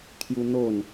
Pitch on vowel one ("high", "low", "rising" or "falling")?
high